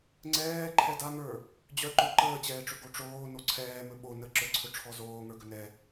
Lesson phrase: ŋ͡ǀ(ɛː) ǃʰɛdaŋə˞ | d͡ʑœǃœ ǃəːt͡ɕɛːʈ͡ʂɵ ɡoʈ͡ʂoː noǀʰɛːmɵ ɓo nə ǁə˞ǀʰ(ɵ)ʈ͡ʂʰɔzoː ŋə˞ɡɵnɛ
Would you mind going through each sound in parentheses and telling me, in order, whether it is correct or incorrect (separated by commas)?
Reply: correct, correct